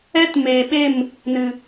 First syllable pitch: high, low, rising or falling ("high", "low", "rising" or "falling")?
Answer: high